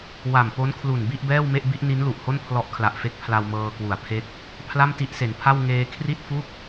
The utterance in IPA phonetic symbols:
wa˨˩mpo˦˥nkʰlu˨˩n bi˥˩ʔbɛː˥˩wme˥˩ʔ bi˦˥ʔni˦˥nlu˨˩ʔho˥˩n pʰlɔ˦˥ʔkʰla˨˩ʔfe˦˥k̚ pʰla˧wmɤː˧kwu˨˩a̯pʰe˦˥k̚ | pʰla˥˩mti˦˥ʔse˩˦npʰa˥˩w ŋeː˧kʰri˥˩t̚fu˥˩k̚

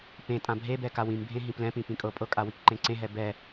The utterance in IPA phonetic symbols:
pẽ tʼãbʱebɛ kawĩmbʱẽ ɦĩplɛ̃pĩ pĩkʼɤ pʼɤkʼawikǃẽ ǀẽɦɛ bɛ

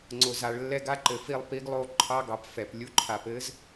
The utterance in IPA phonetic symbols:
ŋ͡ǀʊ˨ za˨ɭlːɛ˦ ɡa˦ǃɘ˨ fi˦lˠ pi˦ɡlˠo˦˨ ǃʰɑ˦ɡɑ˨p fɛ˨plʲu˦ǃʰa˨p ɘ˦z

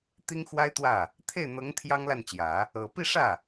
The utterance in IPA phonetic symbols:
t̪i˥ŋxwa˥ɪ̯t̪wä˥˩ | t̪ʰe˥˩ɪ̯n̪ɤ˧˥ŋ t̪ʰjɑ˥ŋla˥˩nt͡ɕjä˨˩˦ | ɤ˨˩ pi˥˧ʂä˥˩

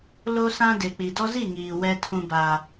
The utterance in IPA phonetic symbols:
lo˦sã˦ de˨k͡pi˨dɔ˦ zi˦˨ŋiː˨ wɛ˦tʰũ˦ba˦

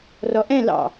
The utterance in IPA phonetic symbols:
rɔʔɛ̃ lɑ̰

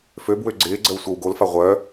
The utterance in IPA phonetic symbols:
føbwø ɡ͡ǀɪːɡ͡ǀəw sʷœwɡolfa ʁʷœ

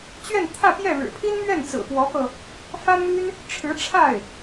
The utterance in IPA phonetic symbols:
t͡ɕɥɛ˥˧nt̪ʰä˥˧pjɛ˥˩ ɻɻ̩˨˩pʰi˥nmɥɛ˥˩n t͡sɹ̩˨˩ pwɔ˧˥kɤ˧ | fa˥nmy˥n | ʈ͡ʂʰɻ̩˧˥ ʈ͡ʂʰa˥˩ɪ̯

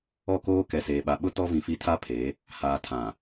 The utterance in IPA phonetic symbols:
ɔ˦˨koː˦ kɛ˨seː˨ɓa˨ ɓʊ˦ tɔ˦vĩ˨fi˦ tʰa˦pʰe˨˦ | haː˨tʰã˨

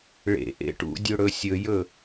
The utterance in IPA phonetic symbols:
ɭḛ ʔḛʈṵdʲɵ ɽɵsʲɵjɵ

